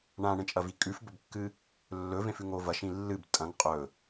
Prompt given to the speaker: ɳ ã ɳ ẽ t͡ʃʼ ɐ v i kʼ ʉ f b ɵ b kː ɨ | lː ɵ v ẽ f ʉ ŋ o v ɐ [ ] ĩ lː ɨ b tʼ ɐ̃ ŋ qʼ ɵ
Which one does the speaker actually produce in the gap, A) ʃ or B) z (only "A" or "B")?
A